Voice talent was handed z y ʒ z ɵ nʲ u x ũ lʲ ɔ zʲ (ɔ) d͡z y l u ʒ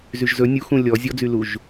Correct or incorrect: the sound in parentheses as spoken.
correct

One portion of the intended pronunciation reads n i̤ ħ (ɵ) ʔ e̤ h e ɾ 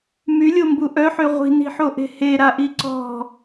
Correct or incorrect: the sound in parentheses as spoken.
incorrect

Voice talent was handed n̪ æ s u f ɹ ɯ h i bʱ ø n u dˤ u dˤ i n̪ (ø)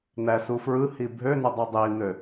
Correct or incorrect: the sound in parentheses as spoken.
correct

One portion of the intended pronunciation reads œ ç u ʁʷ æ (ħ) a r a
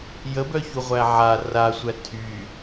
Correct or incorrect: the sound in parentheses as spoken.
incorrect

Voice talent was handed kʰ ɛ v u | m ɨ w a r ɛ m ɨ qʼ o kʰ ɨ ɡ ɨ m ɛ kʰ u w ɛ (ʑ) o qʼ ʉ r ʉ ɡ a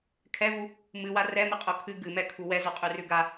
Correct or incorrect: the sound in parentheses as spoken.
incorrect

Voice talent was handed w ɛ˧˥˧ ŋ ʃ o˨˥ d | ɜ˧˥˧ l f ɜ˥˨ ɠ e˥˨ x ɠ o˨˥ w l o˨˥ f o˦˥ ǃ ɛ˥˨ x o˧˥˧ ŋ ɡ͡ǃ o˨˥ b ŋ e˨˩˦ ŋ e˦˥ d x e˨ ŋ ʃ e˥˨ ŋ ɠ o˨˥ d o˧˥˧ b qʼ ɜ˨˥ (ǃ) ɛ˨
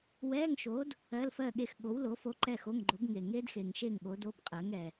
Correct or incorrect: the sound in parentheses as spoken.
incorrect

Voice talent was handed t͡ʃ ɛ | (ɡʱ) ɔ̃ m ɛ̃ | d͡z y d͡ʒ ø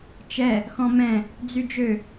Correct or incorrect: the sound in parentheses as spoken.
incorrect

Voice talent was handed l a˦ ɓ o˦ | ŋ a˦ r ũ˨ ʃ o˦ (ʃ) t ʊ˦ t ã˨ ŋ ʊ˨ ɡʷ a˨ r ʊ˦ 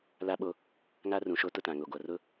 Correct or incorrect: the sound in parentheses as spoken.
incorrect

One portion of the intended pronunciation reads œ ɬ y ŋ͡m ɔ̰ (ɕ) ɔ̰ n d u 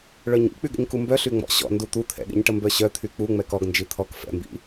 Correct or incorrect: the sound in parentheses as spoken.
correct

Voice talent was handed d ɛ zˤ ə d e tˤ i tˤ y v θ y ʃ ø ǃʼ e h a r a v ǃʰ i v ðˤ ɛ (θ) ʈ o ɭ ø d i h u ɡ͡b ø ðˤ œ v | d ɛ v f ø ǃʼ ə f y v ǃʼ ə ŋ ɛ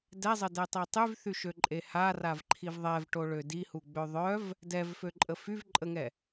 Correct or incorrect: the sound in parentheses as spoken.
incorrect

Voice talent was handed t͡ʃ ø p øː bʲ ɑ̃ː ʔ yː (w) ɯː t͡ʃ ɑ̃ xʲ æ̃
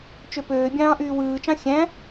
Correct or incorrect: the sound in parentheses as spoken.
correct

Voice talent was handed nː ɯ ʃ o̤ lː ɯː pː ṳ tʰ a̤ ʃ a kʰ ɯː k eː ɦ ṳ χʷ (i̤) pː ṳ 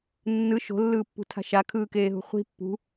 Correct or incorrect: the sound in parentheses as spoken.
correct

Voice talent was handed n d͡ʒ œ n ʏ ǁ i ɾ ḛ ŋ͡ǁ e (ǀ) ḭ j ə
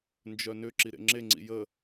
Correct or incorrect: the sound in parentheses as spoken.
incorrect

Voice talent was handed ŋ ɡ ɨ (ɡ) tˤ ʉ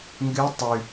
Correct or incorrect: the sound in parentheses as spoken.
incorrect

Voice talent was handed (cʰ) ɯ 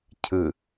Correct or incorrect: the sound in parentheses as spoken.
correct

